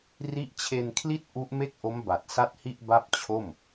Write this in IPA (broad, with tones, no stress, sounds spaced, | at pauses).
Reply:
r i˦˥ ʔ t͡ɕʰ e˧ n kʰ l i˥˩ t̚ ʔ u˦˥ ʔ m e˥˩ k̚ ʔ o˦˥ m b a˨˩ t̚ s a˥˩ t̚ h i˥˩ ʔ b a˥˩ p̚ t͡ɕʰ o˥˩ m